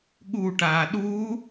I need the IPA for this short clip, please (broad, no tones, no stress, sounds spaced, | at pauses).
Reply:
ɠ u ʈ aː ɗ u